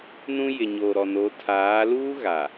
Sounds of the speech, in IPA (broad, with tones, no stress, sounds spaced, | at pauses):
n ũ˦ j ɪ˨ ɲ oː˨ ɾ ɔ˨ n o˨˦ tʰ aː˨˦ l uː˦ ɣ a˨